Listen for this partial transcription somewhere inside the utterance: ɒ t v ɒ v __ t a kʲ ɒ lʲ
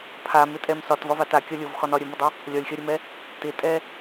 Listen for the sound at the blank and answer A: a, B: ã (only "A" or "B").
A